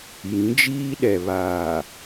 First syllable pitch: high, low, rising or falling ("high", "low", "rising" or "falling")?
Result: rising